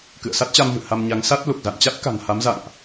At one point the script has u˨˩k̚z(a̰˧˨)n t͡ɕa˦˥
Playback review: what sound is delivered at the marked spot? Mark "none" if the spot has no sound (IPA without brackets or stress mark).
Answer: a̰˧˨